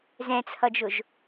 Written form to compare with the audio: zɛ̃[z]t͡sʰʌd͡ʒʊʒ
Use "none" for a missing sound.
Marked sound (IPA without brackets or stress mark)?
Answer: none